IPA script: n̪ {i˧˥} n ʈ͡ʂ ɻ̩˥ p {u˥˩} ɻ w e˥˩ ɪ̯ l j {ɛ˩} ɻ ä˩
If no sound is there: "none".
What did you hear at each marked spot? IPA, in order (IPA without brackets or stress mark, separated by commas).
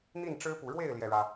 i˥˩, u˨˩, ɛ˩